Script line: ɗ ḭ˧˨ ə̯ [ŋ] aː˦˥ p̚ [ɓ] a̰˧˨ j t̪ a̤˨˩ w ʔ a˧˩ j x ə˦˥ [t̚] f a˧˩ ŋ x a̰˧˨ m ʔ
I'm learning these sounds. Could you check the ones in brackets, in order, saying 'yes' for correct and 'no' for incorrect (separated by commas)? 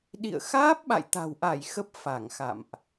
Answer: no, yes, no